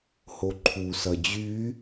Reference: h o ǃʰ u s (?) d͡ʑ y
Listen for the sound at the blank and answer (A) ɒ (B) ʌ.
B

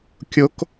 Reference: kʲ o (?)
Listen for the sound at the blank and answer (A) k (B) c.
A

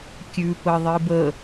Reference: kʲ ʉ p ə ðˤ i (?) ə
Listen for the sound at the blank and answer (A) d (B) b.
B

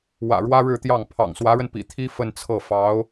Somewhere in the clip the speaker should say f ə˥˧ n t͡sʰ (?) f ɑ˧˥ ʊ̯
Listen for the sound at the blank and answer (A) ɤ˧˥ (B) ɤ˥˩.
B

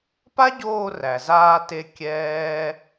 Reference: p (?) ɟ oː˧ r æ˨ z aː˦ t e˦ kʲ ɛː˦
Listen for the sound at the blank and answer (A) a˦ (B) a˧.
A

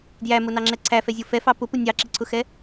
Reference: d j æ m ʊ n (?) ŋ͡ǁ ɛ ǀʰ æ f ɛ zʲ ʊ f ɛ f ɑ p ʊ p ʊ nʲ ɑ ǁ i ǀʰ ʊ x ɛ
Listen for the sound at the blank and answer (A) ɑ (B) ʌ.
A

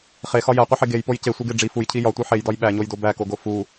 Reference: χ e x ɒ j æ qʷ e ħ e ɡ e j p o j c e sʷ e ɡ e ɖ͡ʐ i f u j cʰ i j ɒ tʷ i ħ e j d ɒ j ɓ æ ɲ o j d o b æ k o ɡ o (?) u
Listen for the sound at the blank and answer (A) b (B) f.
B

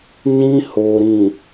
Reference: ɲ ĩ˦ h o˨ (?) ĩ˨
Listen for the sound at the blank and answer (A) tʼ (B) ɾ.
B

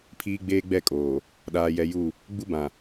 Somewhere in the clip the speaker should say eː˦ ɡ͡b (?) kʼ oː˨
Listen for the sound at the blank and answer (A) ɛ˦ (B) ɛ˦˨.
B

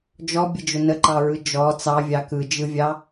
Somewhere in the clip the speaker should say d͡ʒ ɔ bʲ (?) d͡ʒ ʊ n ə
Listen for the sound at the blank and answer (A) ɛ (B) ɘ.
B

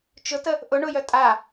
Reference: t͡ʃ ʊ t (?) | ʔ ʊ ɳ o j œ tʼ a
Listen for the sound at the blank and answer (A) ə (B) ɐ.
A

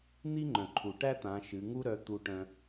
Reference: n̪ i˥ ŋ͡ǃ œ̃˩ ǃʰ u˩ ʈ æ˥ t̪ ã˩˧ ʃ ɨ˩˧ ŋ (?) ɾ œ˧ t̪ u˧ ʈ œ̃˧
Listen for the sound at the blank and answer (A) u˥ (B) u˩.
A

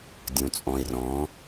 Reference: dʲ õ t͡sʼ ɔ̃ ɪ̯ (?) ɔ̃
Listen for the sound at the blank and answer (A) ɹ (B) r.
B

